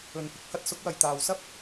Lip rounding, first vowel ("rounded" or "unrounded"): rounded